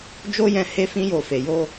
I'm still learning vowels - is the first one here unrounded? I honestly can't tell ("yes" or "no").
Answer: no